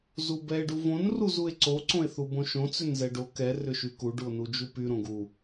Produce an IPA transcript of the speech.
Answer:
z u b ɛ e̯ ɖ u v õ n r u z u e̯ ǀ o ǀ õ e̯ θ u b õ ʃ õ t͡s ʏ n z ɛ ɖ o k ɛ r ʏ ʃ y k u ɖ u o̯ n u d͡ʒ u p y ɾ õ ɡ u

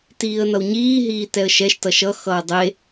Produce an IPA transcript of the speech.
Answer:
t iː ə̯ n ʌ w ɲ iː ɦ iː t ɛ ə̯ ʃ ɛ ʃ t ʌ ʃ ʌ x ʌː dˤ e

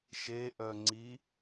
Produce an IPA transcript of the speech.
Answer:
ʃ e ʔ œ ŋ͡ǀ i

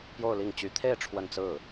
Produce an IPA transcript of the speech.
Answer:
p j o˥˧ ʊ̯ l i˥˩ ŋ t͡ɕ y˧˥ t̪ʰ e˥˧ ɪ̯ ʈ͡ʂʰ w ə˥˧ n t͡s ɹ̩˥˩

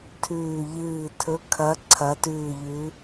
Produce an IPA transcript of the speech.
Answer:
tʰ ʉː˧˩ ʎ ɨː˧˩ tʰ ɵ˨˦ kʰ ɐ˨˦ ǀʰ ɐ˨˦ t ʉː˧˩ ʎ ʉ˨˦

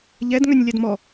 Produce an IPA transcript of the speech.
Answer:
ʎ ɛ d ŋ œ nʲ lʲ a d m ɔ

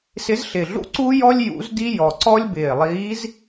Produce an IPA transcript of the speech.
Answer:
s ɪ˧˥ z ɬ ɪ˨˩ ɮ ṵ˥ ǀ u˥ j ɔ˥ lʲ j ṵ˧˥ z d i˥ j ɔ˨˩ ǀ ɔ˥ lʲ b ɪː˨˩ lˠ iː˧˥ z

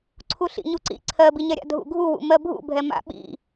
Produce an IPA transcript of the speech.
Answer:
ǀʰ u ɬ ḭ ɲ u ǀ ḭ ǀʰ ɜ b i ɲ ɛ ɾʲ a̰ dʱ ṵ ɡʱ u w ṵ m ɜ bʱ ṵ bʱ ɛ m a̰ ɓ ḭ

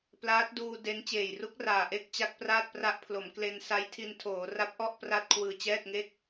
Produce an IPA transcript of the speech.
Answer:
p l aː˦˥ t̚ d uː˧ d e˦˥ n t͡ɕ eː˨˩ j r u˦˥ k̚ r aː˨˩ ʔ e˥˩ k̚ t͡ɕ a˦˥ k̚ p r aː˥˩ t̚ p r a˦˥ ʔ pʰ l o˩˦ m k l e˧ n s a˦˥ j tʰ i˧ n tʰ oː˩˦ r a˦˥ p̚ ʔ ɔ˥˩ ʔ p r a˥˩ t̚ kʰ w ɯː˨˩ t͡ɕ ɛː˥˩ t̚ ŋ e˥˩ k̚

